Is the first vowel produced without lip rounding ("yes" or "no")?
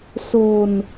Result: no